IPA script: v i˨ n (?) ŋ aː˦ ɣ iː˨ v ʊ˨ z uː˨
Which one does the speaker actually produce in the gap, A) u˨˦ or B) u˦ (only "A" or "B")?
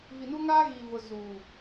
B